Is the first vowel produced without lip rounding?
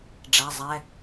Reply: yes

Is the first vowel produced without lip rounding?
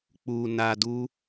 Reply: no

